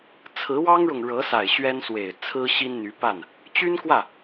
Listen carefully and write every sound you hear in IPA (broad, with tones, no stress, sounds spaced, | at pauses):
t͡sʰ ɹ̩˧˥ w ɑ˥ ŋ ɻ ʊ˨ ŋ ɻ ɤ˧˥ s a˨˩ ɪ̯ ɕ ɥ ɛ˥ n s w e˨˩ ɪ̯ t͡sʰ ɹ̩˥ ɕ i˥ n n̪ y˧˥ p a˥˩ n | t͡ɕ y˥ n k w ä˥˩